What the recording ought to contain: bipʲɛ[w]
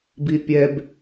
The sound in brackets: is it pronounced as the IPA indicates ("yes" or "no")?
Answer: no